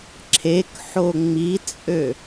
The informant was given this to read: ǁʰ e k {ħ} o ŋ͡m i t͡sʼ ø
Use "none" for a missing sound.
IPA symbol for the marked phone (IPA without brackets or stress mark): ħ